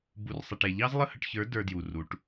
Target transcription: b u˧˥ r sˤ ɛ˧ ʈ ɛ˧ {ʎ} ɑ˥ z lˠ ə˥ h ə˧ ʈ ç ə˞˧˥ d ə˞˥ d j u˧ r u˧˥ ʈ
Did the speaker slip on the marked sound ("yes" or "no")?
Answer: no